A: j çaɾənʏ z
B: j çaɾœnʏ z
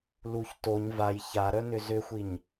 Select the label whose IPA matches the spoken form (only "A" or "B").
B